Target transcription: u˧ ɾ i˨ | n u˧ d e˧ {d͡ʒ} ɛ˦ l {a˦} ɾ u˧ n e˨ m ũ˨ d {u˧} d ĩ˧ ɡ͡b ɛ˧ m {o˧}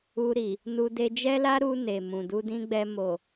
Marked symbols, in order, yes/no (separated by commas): yes, yes, yes, no